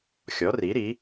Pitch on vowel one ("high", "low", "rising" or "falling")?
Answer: rising